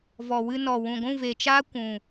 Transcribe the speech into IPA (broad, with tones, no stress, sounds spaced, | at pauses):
v ɔ˨ w ɨ˦ n ɔ˨ w ũ˨ ɡʷ ũ˦˨ v e˨ t͡ʃ aː˦ kʷ ũ˨